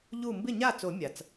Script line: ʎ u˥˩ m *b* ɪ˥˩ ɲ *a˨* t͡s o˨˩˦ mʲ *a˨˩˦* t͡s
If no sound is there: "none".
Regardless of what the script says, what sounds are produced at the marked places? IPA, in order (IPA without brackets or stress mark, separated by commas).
b, a˥˩, a˨˩˦